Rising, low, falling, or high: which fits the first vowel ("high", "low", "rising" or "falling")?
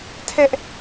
high